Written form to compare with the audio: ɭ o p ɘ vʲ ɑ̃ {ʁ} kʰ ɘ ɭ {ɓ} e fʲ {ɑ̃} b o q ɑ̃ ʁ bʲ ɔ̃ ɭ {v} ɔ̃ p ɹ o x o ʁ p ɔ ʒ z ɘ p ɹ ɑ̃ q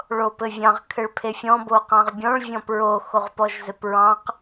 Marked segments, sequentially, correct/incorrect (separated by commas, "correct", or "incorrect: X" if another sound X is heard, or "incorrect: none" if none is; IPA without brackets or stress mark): correct, incorrect: pʰ, incorrect: ɔ̃, incorrect: vʲ